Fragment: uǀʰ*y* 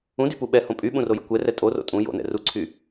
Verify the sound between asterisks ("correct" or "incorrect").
correct